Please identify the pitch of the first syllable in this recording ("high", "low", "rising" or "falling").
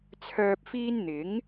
low